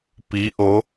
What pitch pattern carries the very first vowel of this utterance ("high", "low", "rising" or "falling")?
rising